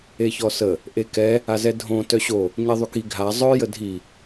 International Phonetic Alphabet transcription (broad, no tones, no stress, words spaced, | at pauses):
eçɔsə | ʔekɛ | azɛdʱõ tœɕo | ɲeðˤyki ɡʱa zˤœ jədʱi